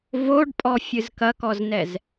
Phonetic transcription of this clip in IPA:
v o ɖ pʼ ɔ fʲ ɨ z k ɐ k ɔ z n ɛ z

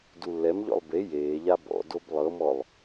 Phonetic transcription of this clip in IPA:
d u lː ɛ m ʎ ɔ̰ lˠ b e j eː ʎ a b ɔ̰ d o b lˠ ɤ m ɔ lˠ

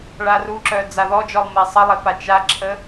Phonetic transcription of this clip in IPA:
ɭ a r u ǁ œ d͡z a ð ɔ d͡ʒ ɔ lˠ m e sˤ ə lˠ e p a t͡ʃ a ǁʰ ə

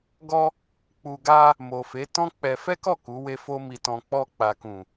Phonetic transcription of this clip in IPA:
ɡ ɔ˧ | k͡p u˨ ɡ a˧ | m o˨ f e˨˦ t ɔ̃˦ k͡p ɛ˧ f ɛ˦ k ɔ˦˨ k u˨˦ w e˦ f o˦ m i˧ t ɔ̃˧ k͡p ɔ˧ k͡p a˨ k ũ˨

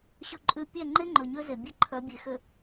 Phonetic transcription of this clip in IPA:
ɕ ɵ˨ ǃʼ ʉ˨ pʲ ɛ˦˨ ŋ͡ǃ e˦ ŋ͡ǃ ɵ˨ ɲ ø˦ z e˨ bʲ e˦ ǃʰ œ˨˦ bʲ e˨ x ø˨

